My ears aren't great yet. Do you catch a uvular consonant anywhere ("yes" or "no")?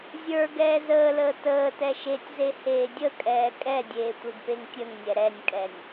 no